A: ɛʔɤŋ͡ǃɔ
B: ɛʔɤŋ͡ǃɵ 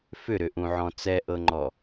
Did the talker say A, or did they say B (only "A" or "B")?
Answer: A